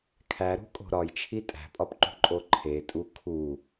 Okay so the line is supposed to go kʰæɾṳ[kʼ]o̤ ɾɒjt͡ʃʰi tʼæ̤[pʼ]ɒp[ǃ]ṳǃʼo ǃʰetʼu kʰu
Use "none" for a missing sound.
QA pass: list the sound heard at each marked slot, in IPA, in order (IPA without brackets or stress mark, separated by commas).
kʼ, pʼ, ǃ